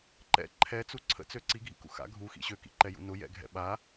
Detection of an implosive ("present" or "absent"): present